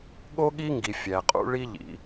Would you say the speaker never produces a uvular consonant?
no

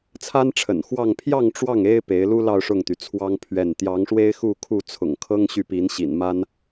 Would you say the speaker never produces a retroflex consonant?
no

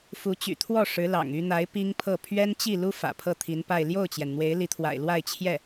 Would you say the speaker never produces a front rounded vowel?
no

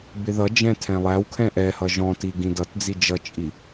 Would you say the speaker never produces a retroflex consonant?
yes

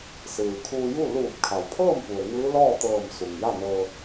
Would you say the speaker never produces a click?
yes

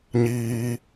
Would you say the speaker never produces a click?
yes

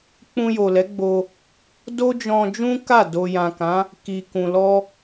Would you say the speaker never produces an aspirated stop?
yes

